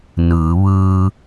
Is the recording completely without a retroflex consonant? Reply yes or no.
yes